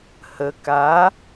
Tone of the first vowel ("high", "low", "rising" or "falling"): low